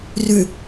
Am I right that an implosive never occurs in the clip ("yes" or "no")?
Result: yes